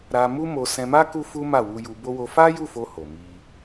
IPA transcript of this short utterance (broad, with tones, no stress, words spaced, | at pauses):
ɾa˧ mu˦mo˧ sɛ̃˧ma˦ ku˦fu˦ma˦˨ wu˧ju˧bo˦ wo˧fa˦ju˦˨fo˧ ho˨mi˧